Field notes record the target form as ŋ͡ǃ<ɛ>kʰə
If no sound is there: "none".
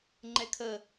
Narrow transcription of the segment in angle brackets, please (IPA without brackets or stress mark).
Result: ɛ